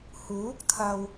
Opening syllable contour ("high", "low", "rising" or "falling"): rising